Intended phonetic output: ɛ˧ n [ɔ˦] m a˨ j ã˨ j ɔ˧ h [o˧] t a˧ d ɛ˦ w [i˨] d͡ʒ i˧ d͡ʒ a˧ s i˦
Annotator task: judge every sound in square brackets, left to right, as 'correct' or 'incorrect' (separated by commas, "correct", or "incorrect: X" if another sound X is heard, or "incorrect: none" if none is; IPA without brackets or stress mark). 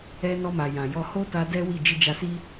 incorrect: ɔ˧, incorrect: o˦, incorrect: i˦˨